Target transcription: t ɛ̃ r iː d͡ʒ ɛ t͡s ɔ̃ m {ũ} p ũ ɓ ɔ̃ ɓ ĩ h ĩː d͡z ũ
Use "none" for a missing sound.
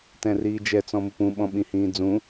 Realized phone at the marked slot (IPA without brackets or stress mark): u